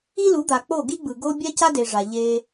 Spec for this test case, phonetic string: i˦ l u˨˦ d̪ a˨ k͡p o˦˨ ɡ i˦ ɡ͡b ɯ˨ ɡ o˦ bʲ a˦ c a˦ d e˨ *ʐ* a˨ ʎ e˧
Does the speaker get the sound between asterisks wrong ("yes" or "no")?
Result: no